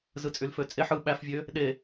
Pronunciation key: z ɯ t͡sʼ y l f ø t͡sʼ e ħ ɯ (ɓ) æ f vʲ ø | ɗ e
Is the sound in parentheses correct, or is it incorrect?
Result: correct